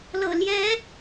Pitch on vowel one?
low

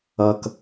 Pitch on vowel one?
low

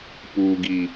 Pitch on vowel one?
low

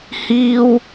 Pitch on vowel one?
high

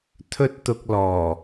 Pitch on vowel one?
high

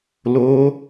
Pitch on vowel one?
high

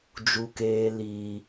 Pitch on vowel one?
high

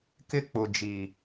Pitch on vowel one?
high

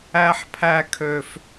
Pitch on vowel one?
high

